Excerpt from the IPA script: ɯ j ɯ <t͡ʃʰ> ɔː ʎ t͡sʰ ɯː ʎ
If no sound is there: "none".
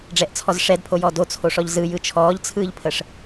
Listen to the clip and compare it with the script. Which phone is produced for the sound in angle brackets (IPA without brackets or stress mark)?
t͡ʃʰ